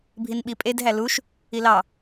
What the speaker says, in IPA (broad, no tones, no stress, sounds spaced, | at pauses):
bʱ i n ɓ i pʼ e d ɦ æ l u ʃ | i l ɑ